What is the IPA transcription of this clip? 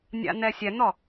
nʲa̰n̪ɛsʲɛn̪ɔ

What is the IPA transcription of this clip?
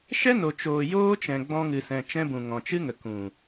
ʃɛ˦no˨ t͡ʃoː˨joː˧t͡ʃɛ̃˨ ɡ͡bɔ̃˧ŋɨ˨sɛ̃˨ t͡ʃɛ̃˦bũ˨ ŋɔ̃˨t͡ʃɨ˦ŋə˨ kũ˨

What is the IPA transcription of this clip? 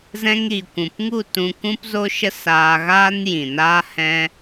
zɛ̃˧ŋɾi˨kʷũ˨pŋu˦˨ tũ˧kũ˦p zo˦ʃə˦ saː˧ɣaː˦njĩ˨naː˦ hɛ̃˦

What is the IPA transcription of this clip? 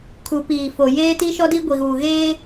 kʰu˨ piː˨fo˨ jeː˦ti˦ʃɔ˦di˦ ɡʷi˨ɣuː˨ɣeː˦

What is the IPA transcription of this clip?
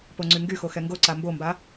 poŋ͡ǀyŋɡyxo xɛŋɡoǀa mbomba

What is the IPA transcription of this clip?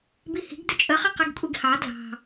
bihi̤ɡ dʊt͡ʃʼəχʌ qiɡkʷʼiɡhɑ dlɑ̤

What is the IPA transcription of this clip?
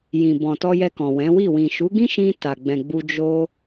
jĩ˨bɔ̃˨ tɔ˧jɛ˧kɔ̃˨ wɛ̃˨˦wi˦˨ wĩ˨ʃu˨˦ɡĩ˦ʃĩ˧ ta˨ɡ͡bɛ̃˨ɡ͡bu˧ d͡ʒo˦

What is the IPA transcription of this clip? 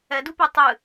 ɛdupe tˤɨ

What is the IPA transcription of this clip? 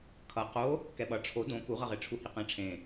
kʰʌ qo | kɛɓʌ ʈ͡ʂʰo dõ kuʁʌʁeʈ͡ʂʰu hiqẽ ʈ͡ʂʰẽ

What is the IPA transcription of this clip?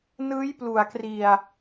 nɯː˦˥jplu˨˩a̯kri˨˩a̯

